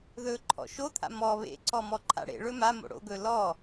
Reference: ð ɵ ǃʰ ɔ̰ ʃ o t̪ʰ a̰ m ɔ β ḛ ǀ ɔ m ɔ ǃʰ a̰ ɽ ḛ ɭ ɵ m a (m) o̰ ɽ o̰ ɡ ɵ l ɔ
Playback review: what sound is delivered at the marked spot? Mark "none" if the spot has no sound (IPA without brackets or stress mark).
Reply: m